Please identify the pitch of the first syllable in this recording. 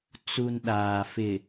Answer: low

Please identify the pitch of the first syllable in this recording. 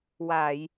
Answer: low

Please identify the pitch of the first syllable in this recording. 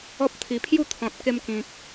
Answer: high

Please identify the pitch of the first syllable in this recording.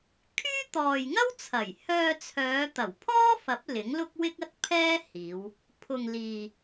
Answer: high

